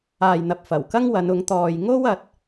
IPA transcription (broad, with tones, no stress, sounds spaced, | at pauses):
aː˨ j n̪ ɐ˨ p̚ f ɐ˨˩ w k ɐ˥ ŋ w ɐ˨˧ n ʊ˨˧ ŋ t̪ ɔː˨ j ŋ o˥ w ɐ˨ t̚